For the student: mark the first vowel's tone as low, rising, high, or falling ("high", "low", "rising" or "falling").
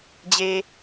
high